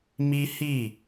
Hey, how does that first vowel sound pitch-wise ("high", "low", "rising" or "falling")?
high